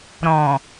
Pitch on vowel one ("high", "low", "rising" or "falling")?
low